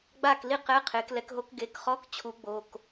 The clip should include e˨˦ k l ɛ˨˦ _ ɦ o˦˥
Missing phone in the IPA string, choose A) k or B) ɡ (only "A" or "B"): A